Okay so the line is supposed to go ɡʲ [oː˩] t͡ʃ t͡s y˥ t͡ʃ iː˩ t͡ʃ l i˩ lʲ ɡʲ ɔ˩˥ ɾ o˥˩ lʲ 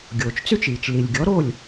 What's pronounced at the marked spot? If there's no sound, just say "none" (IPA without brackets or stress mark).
oː˩